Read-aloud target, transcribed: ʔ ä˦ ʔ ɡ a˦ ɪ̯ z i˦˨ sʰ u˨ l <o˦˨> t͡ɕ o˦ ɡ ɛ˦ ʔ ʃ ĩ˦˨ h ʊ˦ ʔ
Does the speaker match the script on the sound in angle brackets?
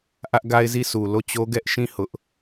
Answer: yes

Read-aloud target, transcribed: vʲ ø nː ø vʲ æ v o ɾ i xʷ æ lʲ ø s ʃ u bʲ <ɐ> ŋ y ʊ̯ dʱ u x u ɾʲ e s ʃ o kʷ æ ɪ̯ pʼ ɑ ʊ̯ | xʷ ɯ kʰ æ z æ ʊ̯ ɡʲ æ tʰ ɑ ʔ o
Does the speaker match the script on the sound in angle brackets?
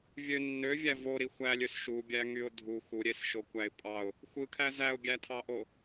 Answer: no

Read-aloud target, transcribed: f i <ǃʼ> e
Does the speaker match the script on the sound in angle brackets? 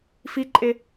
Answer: yes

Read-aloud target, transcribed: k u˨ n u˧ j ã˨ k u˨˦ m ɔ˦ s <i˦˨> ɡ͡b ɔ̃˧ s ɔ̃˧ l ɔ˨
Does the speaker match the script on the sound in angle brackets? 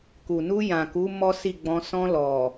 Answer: yes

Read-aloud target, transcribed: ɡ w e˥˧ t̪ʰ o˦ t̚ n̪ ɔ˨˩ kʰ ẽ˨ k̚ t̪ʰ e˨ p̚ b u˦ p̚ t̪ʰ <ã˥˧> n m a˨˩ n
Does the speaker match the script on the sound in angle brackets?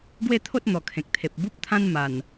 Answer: no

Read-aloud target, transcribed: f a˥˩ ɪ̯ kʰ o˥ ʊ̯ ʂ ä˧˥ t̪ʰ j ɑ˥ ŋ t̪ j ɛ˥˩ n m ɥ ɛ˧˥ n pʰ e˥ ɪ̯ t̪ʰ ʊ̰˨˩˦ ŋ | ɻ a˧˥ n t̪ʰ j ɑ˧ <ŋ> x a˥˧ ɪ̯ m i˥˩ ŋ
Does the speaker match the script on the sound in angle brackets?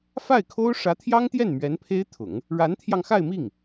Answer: yes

